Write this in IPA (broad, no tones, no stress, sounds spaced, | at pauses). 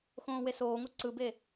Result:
x õː w e s oː ŋ o ǀ ɯ b e